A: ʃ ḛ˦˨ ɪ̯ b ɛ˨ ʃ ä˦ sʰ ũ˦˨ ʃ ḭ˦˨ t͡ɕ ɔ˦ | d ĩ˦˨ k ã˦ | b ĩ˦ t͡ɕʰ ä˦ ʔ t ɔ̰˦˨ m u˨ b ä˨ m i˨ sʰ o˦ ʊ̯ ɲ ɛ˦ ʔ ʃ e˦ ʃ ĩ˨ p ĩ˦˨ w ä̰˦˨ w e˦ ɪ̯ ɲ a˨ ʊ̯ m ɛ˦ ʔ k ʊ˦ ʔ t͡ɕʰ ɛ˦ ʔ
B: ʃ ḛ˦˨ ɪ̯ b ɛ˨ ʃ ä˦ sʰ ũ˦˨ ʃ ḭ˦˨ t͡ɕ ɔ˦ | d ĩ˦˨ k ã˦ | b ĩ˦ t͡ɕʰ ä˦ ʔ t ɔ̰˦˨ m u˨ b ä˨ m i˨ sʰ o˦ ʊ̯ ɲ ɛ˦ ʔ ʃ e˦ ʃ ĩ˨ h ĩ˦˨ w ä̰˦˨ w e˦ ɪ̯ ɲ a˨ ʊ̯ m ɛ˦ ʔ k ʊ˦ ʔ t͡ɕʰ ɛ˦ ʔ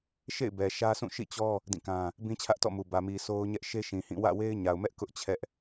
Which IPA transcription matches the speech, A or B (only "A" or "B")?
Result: B